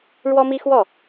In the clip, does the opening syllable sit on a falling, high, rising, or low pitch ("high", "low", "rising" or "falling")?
high